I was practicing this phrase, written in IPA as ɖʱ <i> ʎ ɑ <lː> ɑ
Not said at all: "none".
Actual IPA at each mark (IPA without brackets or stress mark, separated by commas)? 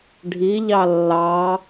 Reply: i, lː